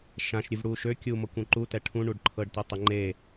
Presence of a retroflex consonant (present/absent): present